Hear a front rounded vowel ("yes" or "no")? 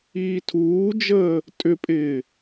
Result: yes